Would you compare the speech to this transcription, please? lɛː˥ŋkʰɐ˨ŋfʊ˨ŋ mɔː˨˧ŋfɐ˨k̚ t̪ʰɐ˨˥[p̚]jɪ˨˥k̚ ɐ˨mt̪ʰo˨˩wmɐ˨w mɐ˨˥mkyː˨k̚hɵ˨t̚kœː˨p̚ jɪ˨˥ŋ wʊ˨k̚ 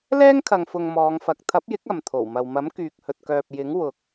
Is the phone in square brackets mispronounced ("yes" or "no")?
no